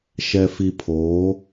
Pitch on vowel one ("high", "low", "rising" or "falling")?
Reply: low